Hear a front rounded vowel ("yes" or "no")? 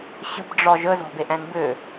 yes